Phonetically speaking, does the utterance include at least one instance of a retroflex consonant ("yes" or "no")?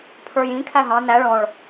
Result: yes